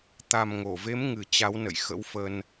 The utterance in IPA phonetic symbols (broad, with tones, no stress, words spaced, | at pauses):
t̪a˨˩mŋo˧˩ve˨˦m ŋɨ˨˩t͡ɕa˨˦wnə̰˧˨j xə̰˧˥wfə˧n